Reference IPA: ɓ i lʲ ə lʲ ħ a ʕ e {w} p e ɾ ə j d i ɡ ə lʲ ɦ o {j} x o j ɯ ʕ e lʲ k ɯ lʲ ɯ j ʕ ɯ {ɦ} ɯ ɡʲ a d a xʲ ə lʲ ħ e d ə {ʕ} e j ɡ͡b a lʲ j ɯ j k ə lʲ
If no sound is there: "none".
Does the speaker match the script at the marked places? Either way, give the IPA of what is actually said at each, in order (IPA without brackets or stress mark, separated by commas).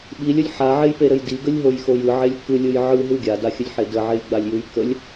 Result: j, j, ɦ, ʕ